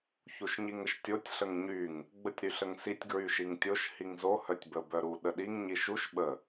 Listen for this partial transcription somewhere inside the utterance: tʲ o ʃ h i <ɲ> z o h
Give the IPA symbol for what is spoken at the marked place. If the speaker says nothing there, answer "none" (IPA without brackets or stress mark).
ŋ